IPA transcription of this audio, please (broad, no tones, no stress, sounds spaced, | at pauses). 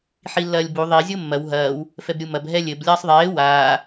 ħ i lː ɐː lʲ b u ðˤ i zʲ o mː ɐ w ɦ ɐː w | f ɛ b ɾʲ u m ɐ b ɦ ɛ lʲ ɘ b lʲ ɐː sˤ ðˤ eː w aː